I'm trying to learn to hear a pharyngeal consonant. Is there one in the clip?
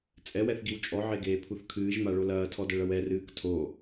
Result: yes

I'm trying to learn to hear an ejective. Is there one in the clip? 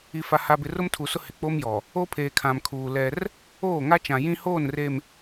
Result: no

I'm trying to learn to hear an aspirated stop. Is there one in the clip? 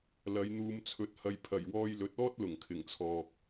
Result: yes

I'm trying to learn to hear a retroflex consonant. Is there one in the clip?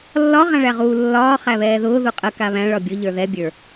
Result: yes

